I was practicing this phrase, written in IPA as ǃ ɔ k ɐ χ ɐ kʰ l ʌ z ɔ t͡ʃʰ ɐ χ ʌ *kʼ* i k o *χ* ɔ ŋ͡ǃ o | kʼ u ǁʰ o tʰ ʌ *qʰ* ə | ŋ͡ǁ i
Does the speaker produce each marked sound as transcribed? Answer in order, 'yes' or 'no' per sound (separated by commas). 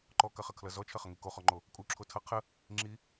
no, yes, yes